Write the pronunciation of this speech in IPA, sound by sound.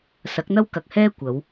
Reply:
s ɐ˨˥ k̚ n̪ ɐ˥ w k ɐ˨ k̚ h ɛː˥ kʷ ɐ˨˧ w

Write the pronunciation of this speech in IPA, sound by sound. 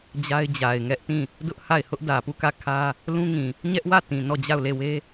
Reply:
d͡ʑ a˦ ɪ̯ d͡ʑ a˨ ɪ̯ ŋ ɛ˦ ʔ t ĩ˦˨ | d ʊ˦ ʔ h a˦˨ ɪ̯ h ʊ˦ ʔ d ä˨ p u˦˨ k ä˦˨ kʰ ä˦ | l ũ˦ ŋ ĩ˨ | ɲ ɛ˦ ʔ w ä˦˨ t ĩ˨ n ɔ˦˨ d͡ʑ a˦˨ ʊ̯ l e˦˨ w e˦

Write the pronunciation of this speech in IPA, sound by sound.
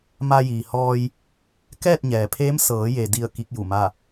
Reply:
m a˧ j iː˩ h ɔː˧ j | k ɛː˥˨ t̚ ɲ ɛː˩ pʰ eː˧˥ m s ɤː˩˧ j e˩ d i˧˩ ə̯ k i˧˥ k̚ j u˧˩ m a˥˨

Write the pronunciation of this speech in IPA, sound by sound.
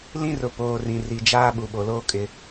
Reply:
l ĩ˦ r ʊ˨ p oː˨ r ĩ˨ r i˨ d͡ʒ aː˦ ɓ u˨ ɓ o˨ l oː˦ kʼ ɪ˦

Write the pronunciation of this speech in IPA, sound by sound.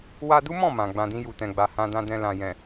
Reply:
w a˧ d u˦ m ɔ̃˦˨ m ã˨ ɡ͡b ã˧ d ĩ˦ j u˧ t ɛ̃˧ ɡ͡b a˧ h ã˧ d ã˧ d ɛ̃˧ l ã˨ j ɛ̃˨

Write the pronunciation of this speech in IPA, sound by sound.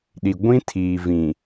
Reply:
ɗ i˨ ɡʷ ĩ˦ tʰ iː˨ v ĩ˨

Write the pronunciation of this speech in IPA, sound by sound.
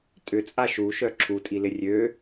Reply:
tʼ ʏ t͡sʼ a ʃ u ʃ œ ǁʰ u tʼ i l ɪ rʲ ø

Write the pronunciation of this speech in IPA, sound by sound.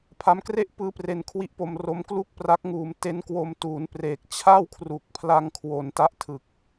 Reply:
pʰ a˦˥ m k r e˥˩ ʔ p ɯː˦˥ p r e˧ n kʰ w i˦˥ ʔ p o˧ m r o˦˥ m k l u˥˩ k̚ p r a˦˥ k̚ ŋ uː˧ m t e˦˥ n k w o˧ m t uː˩˦ n p r eː˨˩ k̚ t͡ɕʰ a˥˩ w kʰ r u˨˩ k̚ pʰ l a˧ ŋ kʰ w o˩˦ n t a˦˥ ʔ tʰ ɯ˨˩ k̚

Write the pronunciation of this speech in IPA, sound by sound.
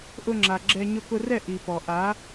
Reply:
ʔ ʊ˧ ŋ͡ǁ a˨ ɡ͡ǁ ɛ˧ ɲ ʊ˧ k ʊ˧ r ɛ˦˨ ʔ i˨ p ɔ˨ ʔ a˨˦

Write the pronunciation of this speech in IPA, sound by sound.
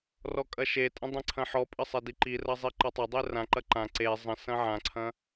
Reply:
r ɔ kʼ ɐ ʃ e tʼ ə̃ dˤ ẽ ǀʰ ɐ̃ ħ ɔ pʼ ə sˤ e d i ǃ i r ɐ zˤ i ǃ ɐ tˤ ɐ dˤ e r ã ǃ ɐ ǃ ã ǀ e zˤ ə̃ s ɐ̃ ʕ ã ǀʰ ɐ̃

